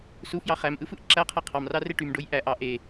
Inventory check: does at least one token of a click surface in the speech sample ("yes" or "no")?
yes